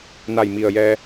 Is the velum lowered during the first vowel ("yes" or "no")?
no